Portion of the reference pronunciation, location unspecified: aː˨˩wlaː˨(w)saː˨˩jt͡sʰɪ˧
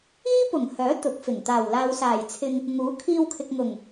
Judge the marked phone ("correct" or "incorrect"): correct